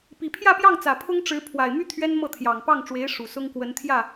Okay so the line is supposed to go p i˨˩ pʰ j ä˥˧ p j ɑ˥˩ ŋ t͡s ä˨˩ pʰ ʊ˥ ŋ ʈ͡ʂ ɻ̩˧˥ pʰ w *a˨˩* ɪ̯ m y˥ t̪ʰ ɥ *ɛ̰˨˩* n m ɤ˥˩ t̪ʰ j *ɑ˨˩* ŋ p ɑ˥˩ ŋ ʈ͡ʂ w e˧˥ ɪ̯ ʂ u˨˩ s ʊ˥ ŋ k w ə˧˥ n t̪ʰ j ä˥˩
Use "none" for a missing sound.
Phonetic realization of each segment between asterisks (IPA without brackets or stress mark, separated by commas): a˨˩, ɛ˥, ɑ˨˩